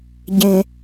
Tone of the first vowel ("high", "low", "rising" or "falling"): low